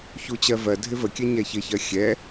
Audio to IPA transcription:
ç u t͡ɕ ɜ v ɜ dʱ ɪ v ə kʲ ɛ ɲ ɛ ç ɪ ç ɜ xʲ ɛ

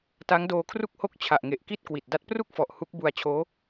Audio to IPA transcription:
t a˦˥ ŋ d oː˧ kʰ r u˥˩ k̚ h o˥˩ k̚ t͡ɕʰ a˨˩ ʔ ŋ e˨˩ ʔ k i˥˩ t̚ k w i˨˩ t̚ d a˦˥ t̚ p r u˥˩ k̚ f ɔ˨˩ ʔ h u˦˥ k̚ b u˧ a̯ t͡ɕʰ oː˦˥

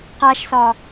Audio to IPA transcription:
q a ʃ s ɒ

